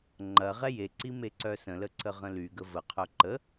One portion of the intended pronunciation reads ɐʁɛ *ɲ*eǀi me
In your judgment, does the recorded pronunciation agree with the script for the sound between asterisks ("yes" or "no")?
no